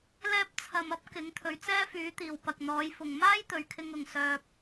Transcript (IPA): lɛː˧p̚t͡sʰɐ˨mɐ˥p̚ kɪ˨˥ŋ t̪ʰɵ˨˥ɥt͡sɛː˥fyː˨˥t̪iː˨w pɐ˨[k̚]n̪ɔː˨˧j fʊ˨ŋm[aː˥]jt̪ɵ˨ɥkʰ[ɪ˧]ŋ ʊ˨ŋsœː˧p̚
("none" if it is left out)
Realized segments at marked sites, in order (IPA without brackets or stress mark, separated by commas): k̚, aː˥, ɪ˧